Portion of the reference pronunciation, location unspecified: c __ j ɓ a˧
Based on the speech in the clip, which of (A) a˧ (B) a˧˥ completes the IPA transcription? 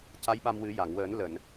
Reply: B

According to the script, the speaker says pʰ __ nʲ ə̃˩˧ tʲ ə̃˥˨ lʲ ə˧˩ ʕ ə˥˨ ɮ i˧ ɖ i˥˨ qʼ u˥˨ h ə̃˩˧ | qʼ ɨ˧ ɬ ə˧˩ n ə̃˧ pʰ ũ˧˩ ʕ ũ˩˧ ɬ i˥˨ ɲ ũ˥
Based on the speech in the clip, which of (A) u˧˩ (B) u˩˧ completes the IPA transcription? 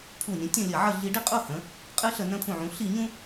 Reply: A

